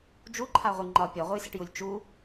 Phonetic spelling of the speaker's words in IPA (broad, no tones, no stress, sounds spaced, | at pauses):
d͡ʒ u ǃʰ a ʁʷ ɨ ŋ͡ǃ ɒ pʲ ɒ ʁʷ ɨ j s ɪ ʈ j u lʲ t͡ʃ u